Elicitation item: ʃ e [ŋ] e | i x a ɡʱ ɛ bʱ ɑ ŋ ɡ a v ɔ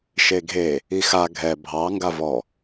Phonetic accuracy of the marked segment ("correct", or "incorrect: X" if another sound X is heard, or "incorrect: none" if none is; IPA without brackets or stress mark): incorrect: ɡʱ